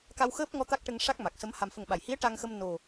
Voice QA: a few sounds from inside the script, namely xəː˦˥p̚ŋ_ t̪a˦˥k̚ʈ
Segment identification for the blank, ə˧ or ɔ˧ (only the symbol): ɔ˧